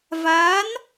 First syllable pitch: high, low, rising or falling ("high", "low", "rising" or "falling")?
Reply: rising